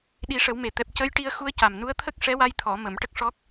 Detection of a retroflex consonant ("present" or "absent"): present